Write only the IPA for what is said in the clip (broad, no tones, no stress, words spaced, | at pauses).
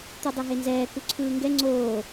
t̪udˤeɦenzɛː kuǀʰɯːŋɡɛ ŋ͡ǀoː